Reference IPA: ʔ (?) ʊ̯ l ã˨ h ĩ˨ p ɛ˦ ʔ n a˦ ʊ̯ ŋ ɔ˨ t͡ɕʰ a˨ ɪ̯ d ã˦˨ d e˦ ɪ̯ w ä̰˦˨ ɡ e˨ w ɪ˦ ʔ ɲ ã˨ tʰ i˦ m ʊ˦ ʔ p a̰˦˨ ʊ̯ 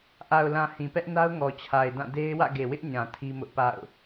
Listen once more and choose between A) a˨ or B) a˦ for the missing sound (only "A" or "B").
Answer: A